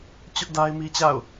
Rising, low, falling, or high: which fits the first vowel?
high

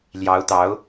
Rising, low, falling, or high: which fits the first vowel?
rising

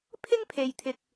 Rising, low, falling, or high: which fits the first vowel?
high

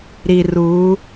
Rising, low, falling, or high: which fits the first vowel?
low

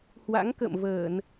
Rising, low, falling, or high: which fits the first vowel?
rising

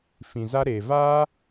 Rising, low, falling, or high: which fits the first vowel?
low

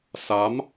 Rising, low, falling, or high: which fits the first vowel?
rising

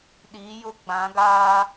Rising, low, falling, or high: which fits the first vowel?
rising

